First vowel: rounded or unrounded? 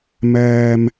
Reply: unrounded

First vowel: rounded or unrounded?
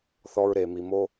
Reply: rounded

